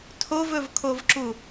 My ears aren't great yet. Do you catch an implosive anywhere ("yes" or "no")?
no